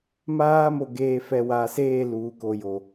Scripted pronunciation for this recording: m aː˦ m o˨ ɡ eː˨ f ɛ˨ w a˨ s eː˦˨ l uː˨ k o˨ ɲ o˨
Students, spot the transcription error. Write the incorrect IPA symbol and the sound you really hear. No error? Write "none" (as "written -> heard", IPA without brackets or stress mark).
ɲ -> j